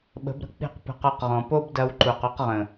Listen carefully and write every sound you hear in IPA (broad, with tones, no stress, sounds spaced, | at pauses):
ɓ ə̤˨˦ b ɾ ə̤˦ k͡p i̤˦˨ q p ə̤˧ q ɔ˧ q ʁ ɔ̃˨ p o˦ b d ɐ˧ w ǃ u˨ q u˧ q ʁ ə̃˨